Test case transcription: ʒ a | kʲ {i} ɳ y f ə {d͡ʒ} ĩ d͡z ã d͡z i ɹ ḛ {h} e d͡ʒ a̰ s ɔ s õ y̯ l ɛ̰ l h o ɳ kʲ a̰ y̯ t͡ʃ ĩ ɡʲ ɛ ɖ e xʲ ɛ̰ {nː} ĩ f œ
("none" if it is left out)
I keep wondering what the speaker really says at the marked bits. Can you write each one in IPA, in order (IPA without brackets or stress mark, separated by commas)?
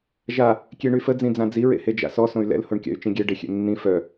e, d͡z, h, nː